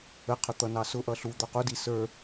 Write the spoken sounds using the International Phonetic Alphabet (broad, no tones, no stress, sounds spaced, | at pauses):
ə qʰ ʊ t̪ ʌ n ɑ s ʊ ʔ ʌ ɬ u d̪ ɔ q u d i s ə˞